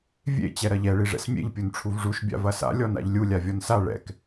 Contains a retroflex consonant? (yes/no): yes